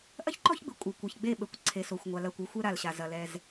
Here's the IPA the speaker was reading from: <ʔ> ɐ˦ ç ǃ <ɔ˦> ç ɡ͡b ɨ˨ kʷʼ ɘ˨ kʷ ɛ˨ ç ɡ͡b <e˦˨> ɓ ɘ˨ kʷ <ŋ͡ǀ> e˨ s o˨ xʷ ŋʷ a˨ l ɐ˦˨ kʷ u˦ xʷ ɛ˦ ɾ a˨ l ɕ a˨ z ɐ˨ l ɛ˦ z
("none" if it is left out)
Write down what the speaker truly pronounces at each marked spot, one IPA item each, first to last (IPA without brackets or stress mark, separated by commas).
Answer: ʔ, ɔ˦, e˦˨, ǀʰ